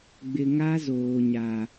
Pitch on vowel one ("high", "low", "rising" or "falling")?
low